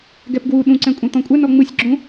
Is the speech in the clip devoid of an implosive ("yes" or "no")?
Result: no